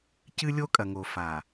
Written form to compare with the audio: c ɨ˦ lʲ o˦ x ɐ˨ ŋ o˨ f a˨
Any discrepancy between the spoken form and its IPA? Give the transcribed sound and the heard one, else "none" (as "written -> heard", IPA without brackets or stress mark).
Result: x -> kʼ